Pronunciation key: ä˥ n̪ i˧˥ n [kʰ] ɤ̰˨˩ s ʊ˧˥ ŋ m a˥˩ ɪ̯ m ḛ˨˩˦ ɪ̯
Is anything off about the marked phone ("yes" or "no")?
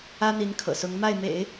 no